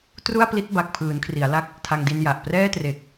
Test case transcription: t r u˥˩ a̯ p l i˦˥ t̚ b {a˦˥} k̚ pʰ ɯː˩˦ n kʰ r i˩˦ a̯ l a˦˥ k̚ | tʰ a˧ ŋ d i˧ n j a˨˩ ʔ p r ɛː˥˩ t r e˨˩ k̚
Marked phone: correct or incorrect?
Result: incorrect